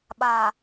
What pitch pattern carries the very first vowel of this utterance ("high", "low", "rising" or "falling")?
low